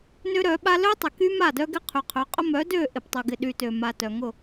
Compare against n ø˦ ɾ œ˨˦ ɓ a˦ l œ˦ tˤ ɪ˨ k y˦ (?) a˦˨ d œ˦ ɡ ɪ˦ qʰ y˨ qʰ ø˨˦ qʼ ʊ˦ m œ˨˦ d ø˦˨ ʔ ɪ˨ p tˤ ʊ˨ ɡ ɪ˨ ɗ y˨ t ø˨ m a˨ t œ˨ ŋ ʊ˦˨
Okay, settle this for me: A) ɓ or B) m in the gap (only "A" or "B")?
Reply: B